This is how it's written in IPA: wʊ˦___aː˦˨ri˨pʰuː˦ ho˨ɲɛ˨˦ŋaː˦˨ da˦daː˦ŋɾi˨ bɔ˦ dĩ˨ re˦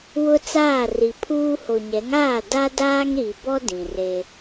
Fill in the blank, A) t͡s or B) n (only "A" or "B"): A